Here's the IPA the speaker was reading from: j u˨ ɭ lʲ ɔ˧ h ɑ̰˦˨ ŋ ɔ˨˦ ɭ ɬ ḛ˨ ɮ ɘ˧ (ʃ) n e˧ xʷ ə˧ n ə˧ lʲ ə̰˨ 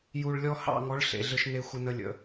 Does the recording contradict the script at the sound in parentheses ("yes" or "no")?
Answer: no